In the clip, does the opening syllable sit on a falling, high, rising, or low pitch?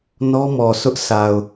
high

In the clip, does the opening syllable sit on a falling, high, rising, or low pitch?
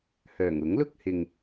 low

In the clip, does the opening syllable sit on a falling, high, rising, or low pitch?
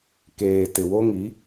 low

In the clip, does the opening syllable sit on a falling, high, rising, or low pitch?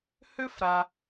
high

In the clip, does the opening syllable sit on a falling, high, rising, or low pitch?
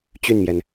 falling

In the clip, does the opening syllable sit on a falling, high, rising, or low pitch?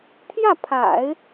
falling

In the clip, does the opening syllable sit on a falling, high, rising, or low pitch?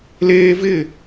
high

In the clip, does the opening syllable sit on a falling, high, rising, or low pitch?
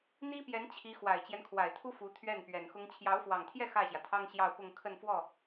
high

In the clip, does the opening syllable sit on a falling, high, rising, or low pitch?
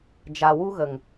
low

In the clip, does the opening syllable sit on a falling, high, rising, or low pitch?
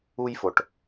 high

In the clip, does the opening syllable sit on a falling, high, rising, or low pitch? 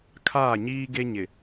falling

